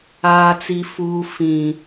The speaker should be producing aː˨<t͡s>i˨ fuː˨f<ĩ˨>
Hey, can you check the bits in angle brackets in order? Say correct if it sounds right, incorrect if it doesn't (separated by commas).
correct, correct